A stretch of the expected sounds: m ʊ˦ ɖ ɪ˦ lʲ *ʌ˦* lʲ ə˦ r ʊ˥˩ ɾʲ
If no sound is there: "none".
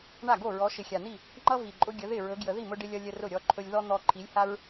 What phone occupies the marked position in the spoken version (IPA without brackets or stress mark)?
ʌ˦